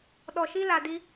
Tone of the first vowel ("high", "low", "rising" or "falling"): low